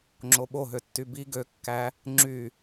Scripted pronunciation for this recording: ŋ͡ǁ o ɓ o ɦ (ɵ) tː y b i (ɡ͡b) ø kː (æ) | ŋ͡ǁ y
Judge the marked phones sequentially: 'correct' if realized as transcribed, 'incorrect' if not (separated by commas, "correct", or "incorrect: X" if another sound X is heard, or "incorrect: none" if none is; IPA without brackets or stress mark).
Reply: incorrect: ø, incorrect: ɡ, correct